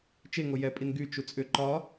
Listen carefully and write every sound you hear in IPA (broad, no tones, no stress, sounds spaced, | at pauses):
t͡ʃ e ŋ o j ɛ pʼ i n ɡ y t͡ʃ u t͡sʼ ʏ ǃ ɒ